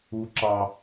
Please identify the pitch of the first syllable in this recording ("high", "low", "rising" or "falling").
high